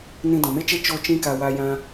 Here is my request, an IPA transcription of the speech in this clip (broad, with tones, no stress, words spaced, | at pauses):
nĩ˧dɔ̃˨me˦t͡ʃe˦ t͡ʃo˦t͡ʃĩ˦ka˧ wa˧jã˧